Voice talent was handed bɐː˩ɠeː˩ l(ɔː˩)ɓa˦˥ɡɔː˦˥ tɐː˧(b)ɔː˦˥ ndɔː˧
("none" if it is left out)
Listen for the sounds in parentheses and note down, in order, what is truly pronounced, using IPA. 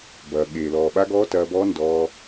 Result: ɔː˩, b

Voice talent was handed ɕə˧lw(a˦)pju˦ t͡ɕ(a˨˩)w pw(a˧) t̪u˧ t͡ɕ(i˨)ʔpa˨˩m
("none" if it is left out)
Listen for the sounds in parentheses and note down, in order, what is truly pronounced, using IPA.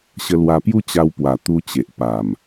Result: a˧, a˧, a˨˩, e˨

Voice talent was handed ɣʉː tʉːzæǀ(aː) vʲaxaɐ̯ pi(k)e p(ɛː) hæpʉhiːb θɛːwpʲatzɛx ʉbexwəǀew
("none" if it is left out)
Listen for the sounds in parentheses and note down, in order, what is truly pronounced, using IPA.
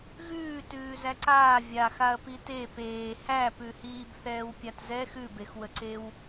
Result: aː, t, eː

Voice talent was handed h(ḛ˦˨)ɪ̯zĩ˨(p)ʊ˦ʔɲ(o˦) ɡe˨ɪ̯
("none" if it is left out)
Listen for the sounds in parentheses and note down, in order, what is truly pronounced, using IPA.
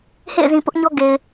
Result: ḛ˦˨, p, ɔ˦

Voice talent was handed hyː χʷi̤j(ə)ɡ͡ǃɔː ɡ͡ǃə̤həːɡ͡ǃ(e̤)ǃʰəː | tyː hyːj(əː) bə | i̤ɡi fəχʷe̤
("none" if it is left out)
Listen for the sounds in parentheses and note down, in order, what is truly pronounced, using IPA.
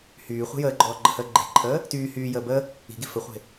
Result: əː, e̤, əː

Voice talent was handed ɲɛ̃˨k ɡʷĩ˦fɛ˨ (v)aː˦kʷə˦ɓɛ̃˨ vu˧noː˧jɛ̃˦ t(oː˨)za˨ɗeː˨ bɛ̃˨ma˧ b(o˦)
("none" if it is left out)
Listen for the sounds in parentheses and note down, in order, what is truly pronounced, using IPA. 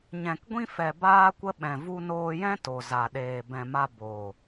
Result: b, o˨, o˨

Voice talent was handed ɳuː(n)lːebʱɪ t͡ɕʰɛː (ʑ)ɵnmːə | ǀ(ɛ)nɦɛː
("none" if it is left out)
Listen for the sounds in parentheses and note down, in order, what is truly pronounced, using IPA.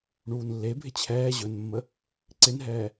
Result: n, ʑ, ɪ

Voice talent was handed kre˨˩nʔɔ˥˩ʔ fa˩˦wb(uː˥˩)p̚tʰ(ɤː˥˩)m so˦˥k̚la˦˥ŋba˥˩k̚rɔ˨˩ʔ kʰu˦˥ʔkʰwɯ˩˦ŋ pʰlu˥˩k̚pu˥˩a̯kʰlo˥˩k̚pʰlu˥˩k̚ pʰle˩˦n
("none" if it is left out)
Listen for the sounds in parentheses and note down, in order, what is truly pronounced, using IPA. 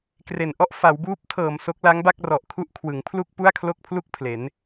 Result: uː˦˥, ɤː˨˩

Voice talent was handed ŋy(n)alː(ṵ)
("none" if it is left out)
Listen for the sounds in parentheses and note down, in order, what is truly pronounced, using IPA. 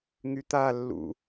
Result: t̪, ṵ

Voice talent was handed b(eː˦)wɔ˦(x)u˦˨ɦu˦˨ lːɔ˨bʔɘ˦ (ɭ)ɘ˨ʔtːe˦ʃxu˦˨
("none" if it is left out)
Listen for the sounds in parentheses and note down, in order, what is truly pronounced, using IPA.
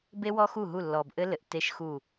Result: e˦, x, l

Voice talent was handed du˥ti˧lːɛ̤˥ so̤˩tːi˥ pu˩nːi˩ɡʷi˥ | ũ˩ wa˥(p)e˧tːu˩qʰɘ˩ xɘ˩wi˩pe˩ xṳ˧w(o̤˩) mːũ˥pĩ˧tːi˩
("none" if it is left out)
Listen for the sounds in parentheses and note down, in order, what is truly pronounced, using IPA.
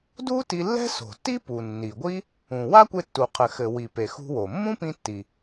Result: kʷ, o˩

